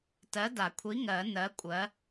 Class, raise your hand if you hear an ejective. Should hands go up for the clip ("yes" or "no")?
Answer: yes